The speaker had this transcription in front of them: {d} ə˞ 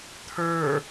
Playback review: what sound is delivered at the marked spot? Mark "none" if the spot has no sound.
t̪ʰ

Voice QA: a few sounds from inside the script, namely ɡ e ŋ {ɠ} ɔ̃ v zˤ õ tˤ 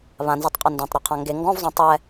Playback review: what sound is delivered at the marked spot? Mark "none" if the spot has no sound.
ɡ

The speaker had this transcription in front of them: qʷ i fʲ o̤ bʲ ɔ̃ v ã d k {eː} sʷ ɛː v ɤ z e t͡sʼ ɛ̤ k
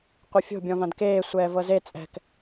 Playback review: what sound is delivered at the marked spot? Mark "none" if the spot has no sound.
eː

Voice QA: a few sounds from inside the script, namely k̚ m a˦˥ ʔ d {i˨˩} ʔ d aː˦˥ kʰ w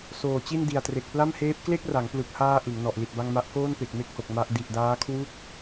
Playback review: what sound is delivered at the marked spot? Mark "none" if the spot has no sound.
i˨˩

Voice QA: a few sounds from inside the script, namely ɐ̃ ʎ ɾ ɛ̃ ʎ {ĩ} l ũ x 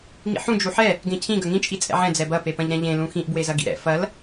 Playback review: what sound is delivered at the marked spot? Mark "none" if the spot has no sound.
ẽ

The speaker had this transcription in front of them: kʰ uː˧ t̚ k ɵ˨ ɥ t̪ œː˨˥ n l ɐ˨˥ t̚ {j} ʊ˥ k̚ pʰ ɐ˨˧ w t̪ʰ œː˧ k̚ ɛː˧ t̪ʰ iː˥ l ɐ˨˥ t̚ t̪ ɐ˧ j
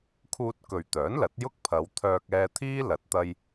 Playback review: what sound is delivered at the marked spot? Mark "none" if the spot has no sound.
j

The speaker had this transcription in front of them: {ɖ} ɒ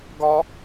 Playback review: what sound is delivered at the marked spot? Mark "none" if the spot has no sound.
ɡ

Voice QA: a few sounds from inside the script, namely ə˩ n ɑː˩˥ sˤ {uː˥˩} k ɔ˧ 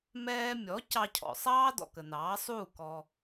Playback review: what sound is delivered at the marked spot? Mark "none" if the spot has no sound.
uː˥˩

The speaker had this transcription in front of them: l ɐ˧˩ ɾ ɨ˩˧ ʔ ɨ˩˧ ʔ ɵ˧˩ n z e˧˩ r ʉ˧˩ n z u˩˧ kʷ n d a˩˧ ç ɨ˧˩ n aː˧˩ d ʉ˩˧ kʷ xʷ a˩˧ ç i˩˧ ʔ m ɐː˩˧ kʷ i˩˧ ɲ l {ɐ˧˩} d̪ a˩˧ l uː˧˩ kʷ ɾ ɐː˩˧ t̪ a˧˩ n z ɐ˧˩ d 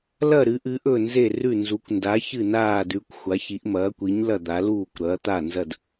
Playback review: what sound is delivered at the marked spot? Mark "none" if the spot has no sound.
ɐ˧˩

